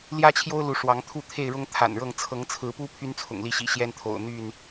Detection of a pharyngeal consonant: absent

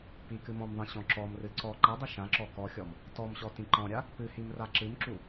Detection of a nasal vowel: present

